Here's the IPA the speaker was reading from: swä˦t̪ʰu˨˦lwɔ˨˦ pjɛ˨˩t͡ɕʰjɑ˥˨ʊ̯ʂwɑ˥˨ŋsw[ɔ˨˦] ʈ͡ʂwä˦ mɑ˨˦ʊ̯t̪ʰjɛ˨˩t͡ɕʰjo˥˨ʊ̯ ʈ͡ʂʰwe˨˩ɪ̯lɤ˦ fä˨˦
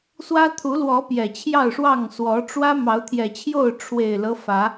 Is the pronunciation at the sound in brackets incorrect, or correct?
correct